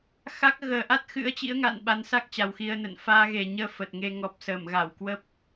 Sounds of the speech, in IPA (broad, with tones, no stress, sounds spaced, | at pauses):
x a˦˥ k̚ ɣ əː˨˩ ʔ a˦˥ t̚ x ɨ̰˧˥ ə̯ t͡ɕ ḭ˧˥ ə̯ ŋ a̰˧˨ n ɓ a˨˦ n s a˦˥ k̚ t͡ɕ a˨˩ w x i˧ ə̯ n ə̰˧˨ n f aː˧ ɣ e˨˩ ɲ əː˧ f ə˨˩ t̚ ŋ e˧ ŋ ɔ˨˩ p̚ s əː˧˩ m ɣ a˧˩ w k w ə˦˥ p̚